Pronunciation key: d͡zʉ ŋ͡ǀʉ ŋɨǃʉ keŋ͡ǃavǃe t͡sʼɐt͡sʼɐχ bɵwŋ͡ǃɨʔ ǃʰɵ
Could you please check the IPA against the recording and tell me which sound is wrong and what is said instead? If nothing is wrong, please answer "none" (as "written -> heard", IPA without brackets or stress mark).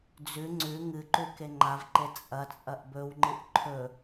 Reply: χ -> ʔ